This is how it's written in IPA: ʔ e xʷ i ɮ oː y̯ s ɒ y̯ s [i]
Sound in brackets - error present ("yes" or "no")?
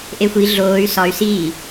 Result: yes